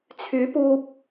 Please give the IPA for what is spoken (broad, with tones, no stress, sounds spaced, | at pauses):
t͡sʰ yː˨˥ p uː˧ p̚